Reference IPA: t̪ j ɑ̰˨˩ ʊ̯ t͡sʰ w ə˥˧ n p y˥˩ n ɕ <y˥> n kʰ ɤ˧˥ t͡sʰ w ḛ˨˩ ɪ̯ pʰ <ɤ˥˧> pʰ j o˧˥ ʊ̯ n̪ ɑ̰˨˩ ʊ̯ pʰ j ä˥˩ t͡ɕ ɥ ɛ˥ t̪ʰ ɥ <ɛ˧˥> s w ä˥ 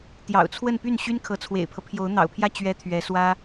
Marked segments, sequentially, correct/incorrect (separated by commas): correct, incorrect, correct